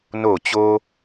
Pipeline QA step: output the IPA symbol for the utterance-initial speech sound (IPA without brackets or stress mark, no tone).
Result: n